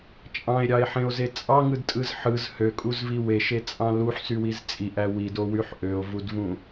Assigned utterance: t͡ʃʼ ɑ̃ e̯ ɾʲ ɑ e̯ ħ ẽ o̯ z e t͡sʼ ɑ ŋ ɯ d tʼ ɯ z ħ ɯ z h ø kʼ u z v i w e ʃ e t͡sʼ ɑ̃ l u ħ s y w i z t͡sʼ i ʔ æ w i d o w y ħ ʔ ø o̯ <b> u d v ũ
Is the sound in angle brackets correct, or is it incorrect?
incorrect